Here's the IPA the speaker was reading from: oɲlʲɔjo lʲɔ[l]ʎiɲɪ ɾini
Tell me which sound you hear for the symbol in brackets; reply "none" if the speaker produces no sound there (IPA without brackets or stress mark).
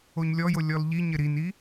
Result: l